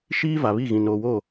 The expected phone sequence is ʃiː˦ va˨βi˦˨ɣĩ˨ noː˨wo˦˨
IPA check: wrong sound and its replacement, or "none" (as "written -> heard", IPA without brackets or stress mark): none